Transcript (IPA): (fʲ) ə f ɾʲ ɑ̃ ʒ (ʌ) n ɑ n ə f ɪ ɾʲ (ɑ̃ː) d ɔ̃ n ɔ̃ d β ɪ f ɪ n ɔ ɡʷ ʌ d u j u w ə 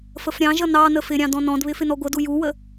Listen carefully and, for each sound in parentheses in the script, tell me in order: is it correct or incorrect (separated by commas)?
incorrect, correct, incorrect